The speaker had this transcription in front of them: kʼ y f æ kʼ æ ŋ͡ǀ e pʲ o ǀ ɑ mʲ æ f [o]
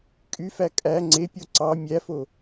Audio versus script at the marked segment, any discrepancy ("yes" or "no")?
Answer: no